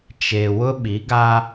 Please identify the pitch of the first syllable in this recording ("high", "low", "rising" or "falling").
low